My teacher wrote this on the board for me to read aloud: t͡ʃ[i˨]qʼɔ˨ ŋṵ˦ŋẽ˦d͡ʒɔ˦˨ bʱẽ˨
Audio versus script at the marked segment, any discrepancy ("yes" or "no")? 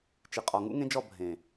no